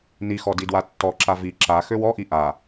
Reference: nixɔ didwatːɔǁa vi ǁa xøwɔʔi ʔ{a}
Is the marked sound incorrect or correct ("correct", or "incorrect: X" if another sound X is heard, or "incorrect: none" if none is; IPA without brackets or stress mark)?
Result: correct